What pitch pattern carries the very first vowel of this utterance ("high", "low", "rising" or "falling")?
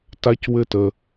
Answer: high